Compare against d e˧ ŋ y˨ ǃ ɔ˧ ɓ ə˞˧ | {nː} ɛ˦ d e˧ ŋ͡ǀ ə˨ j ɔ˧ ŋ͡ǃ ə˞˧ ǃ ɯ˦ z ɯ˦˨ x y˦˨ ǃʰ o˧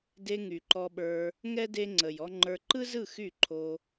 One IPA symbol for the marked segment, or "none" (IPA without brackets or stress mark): ŋ